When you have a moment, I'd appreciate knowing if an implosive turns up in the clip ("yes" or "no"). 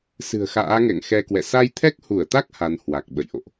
yes